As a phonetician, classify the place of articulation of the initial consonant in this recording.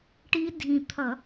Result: retroflex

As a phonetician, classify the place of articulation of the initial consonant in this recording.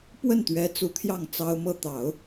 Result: labial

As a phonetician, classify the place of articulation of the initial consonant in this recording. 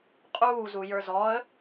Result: uvular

